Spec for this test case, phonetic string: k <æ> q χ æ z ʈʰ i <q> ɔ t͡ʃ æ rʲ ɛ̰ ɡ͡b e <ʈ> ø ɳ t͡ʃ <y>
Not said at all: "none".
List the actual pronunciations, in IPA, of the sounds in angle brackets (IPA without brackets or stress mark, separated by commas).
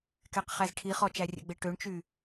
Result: ɛ, χ, ʈ, y